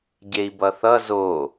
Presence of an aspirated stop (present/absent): absent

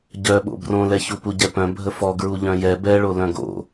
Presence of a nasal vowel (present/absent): present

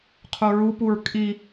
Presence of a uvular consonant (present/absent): present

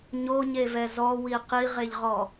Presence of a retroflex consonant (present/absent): absent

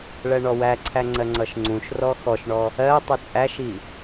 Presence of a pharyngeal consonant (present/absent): absent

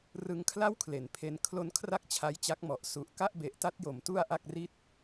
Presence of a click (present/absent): absent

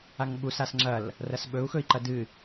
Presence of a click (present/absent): present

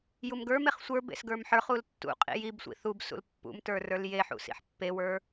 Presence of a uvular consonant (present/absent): present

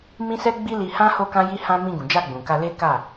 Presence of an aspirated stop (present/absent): absent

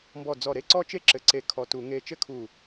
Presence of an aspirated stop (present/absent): present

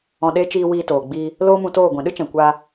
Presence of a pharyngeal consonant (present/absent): absent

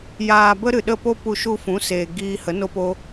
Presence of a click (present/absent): absent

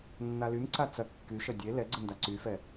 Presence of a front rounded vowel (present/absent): present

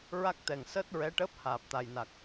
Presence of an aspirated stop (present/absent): absent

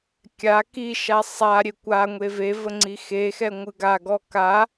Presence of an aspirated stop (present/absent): absent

